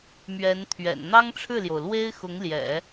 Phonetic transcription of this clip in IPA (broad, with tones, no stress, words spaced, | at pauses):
mɥɛ˧˥nt̪ʰɥɛ̰˨˩n n̪ɑ˥ŋʈ͡ʂʰɻ̩˥˩ljo˩ʊ̯lwe˥ɪ̯ xʊ˧˥ŋljɛ̰˨˩˦